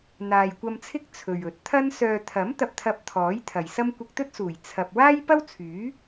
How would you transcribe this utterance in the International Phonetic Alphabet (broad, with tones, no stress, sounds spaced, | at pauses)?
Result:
n̪ aː˨ j kʷ ɐ˧ m t͡sʰ ɪ˥ k̚ t͡sʰ ɵ˨ ɥ ɵ˨˥ t̚ t̪ʰ ɐ˥ n s œː˨ t̪ʰ ɐ˨˥ m t̪ ɐ˧ p̚ t̪ʰ ɐ˧ p̚ t̪ʰ ɔː˨˥ j t̪ʰ ɐ˨ j s ɐ˥ m kʷ ɪ˧ k̚ t̪ ɵ˥ t̚ s uː˨˩ j t͡sʰ ɐ˧ p̚ w aː˥ j p ɐ˥ w t͡sʰ yː˨˥